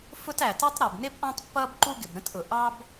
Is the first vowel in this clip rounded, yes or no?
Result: yes